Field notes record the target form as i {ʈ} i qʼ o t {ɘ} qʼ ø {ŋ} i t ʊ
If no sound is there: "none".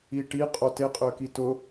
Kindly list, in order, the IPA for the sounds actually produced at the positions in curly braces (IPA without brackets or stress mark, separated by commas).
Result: ʈ, e, k